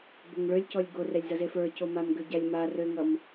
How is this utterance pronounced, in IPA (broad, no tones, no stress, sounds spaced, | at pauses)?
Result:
b o ŋ ɭ ø lʲ c ɔ lʲ ɡ o r ɛ lʲ z ʌ z e f ə˞ c o m a m ɡ ø ɟ a lʲ m a r ø ŋ ʌ m